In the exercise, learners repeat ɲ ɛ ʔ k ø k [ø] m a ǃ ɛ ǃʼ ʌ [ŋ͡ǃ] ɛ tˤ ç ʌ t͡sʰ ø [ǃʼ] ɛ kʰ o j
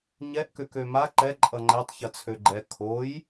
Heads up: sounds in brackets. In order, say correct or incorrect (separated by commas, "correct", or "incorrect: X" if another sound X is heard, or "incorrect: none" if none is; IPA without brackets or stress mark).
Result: correct, correct, incorrect: ɡ͡ǃ